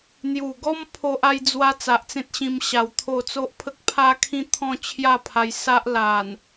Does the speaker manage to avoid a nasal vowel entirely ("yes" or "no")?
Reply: no